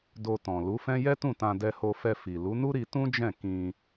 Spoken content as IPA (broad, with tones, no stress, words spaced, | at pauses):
do˧tɔ̃˨ lu˨˦fɛ̃˦ jɛ˦tũ˦˨tã˧ dɛ˧ho˧fɛ˧ fi˨ lu˨˦nu˦ ɾi˧tũ˦ d͡ʒɛ̃˦˨ kĩ˧